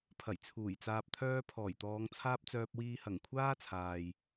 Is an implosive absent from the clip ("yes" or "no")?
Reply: yes